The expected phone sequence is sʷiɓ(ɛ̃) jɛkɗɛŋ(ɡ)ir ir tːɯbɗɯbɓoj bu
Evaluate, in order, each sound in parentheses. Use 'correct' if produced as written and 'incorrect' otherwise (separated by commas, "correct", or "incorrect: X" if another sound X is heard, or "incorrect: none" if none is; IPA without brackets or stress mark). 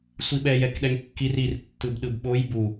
incorrect: ɛ, incorrect: kː